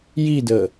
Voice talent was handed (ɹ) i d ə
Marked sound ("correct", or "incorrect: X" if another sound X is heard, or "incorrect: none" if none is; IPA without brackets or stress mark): incorrect: j